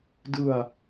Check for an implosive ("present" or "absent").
absent